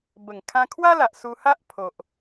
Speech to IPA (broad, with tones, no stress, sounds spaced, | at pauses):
b ə˨˩ ŋ kʰ ã˧ kʰ w a˦ l a˨ ʔ s u˧ h a˦ ʔ pʰ o˨ ʔ